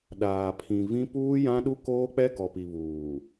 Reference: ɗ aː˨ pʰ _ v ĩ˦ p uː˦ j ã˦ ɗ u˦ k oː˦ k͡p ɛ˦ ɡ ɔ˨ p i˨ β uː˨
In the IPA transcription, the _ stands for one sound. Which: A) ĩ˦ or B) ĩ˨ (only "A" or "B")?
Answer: B